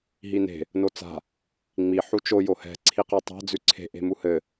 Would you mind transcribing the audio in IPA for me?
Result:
ɦine̤ | not͡sa̤ | ŋ͡mi ħut͡ʃo johɛ̤ ǀʰiqatˤa̤ d͡zʉǀʰe̤ ʔe̤muhɘ

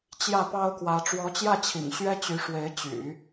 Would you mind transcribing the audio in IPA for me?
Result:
t͡ɕjä˥˩pɑ˥ʊ̯kwä˧˥ ʈ͡ʂwɔ˧˥t͡ɕjä˥˩t͡ɕʰḭ˨˩ŋ ɕɥɛ˥t͡ɕy˧˥ʂwe˧˥ɪ̯ t͡ɕy̰˨˩˦

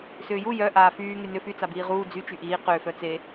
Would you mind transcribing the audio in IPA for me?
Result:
sʏːju jœ ʔaːfyː ŋynʏ fy t͡sabiːʁuː d͡zy t͡ʃyʔiː qʏː fœt͡se

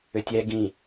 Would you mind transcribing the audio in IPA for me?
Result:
ʏtʲɛ ɡĩ

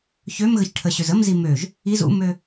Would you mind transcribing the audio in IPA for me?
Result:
çømɣəç ʈʰəɕøz əmzi møʒ | iz ṵmø

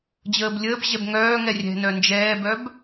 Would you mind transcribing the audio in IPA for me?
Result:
d͡ʑəːblʲəːbʑɛb ŋœːŋɛ rʲɛ̤nœ nd͡ʒɛːbœb

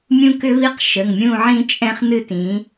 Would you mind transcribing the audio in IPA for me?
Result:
mʲũ˦kʏ˦βi˦q ʃə˩˧˩ŋmʲũ˦˨ʕĩ˦t͡ʃʼɛ̃˦χ nɨ˦˨tĩ˩˧

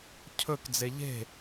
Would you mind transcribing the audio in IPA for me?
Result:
cʰɵk d͡zeʎe̤

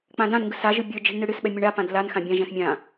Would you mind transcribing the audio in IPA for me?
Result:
k͡pãdãnŋɡɯ saʒɯ bʲə˞d͡ʒi̤ɳ nɯɽɨsɓɛ mʲɯɳapãd lanxã bʲãʒɛ̃s mʲã

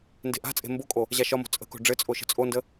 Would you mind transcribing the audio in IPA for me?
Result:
nde̤ʔa̤t͡sʼe̤ mbokʼo | ʑaʃɒmo̤ t͡sʼə̤ko̤ ɖ͡ʐɘt͡sʼo ʃə̤t͡sʼondə

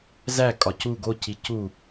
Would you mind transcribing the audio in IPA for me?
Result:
zæ kʼɒcu ɡo cicu

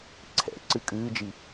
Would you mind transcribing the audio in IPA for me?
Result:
ǀʰɛ̰ ǀɨkʼɨːd͡ʒi

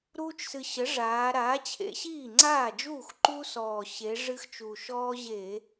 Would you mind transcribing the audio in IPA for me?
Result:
ɾuː˦t͡ʃsɨ˨˩ ɕə˩˥ʐaː˩˧ ɾaː˩˥ t͡ɕʰḛ˩˧ɕiː˥˩ŋ͡ǀaː˥˩d͡ʒuː˥˩x ǃu˦sɔː˨˩ ɕe˩˧ ʐɨ˦x t͡ʃu˨˩ ʃɔː˦ʑeː˧˩˧

